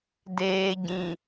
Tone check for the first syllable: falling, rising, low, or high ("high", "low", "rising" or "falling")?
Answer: low